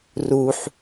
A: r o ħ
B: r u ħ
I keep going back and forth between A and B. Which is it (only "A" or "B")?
B